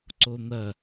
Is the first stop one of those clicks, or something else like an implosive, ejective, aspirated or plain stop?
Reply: click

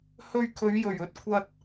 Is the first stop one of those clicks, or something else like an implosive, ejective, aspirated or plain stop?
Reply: aspirated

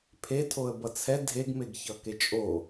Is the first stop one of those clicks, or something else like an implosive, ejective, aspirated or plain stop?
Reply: aspirated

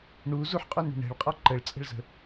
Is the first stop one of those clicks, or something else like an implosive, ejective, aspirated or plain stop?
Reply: ejective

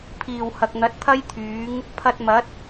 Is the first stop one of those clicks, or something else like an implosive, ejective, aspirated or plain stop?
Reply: aspirated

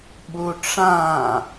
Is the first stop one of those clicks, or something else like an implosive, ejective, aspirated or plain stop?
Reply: implosive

